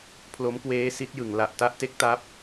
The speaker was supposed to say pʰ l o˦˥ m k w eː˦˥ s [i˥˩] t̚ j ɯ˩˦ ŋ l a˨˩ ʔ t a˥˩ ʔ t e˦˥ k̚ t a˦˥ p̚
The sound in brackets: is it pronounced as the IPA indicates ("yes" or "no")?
no